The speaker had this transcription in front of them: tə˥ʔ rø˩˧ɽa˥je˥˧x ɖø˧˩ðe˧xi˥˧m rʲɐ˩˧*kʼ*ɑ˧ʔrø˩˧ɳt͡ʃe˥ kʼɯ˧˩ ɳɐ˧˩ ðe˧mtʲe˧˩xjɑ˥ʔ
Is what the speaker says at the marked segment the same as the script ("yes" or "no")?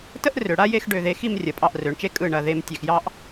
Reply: no